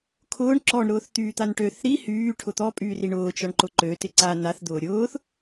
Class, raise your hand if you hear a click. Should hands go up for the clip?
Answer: yes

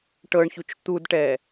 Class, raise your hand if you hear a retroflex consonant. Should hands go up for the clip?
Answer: yes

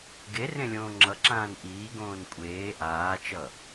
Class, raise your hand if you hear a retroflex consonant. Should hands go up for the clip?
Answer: no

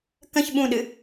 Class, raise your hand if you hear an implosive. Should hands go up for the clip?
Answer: yes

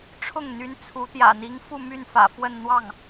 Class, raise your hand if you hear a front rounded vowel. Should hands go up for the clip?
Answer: yes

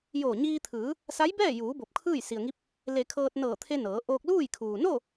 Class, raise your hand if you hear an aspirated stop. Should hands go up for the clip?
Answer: yes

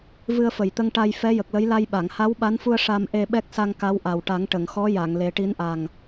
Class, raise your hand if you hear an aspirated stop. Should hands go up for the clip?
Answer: no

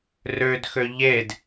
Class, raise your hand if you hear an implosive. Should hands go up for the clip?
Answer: no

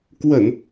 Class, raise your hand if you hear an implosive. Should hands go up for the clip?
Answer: no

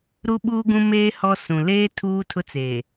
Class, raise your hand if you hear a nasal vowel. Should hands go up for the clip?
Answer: yes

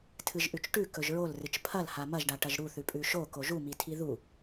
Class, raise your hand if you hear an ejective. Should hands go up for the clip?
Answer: yes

